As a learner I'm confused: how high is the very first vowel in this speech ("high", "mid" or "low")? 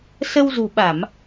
mid